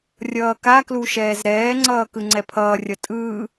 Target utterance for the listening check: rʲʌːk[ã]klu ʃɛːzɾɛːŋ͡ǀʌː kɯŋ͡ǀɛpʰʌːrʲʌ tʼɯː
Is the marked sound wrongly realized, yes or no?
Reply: yes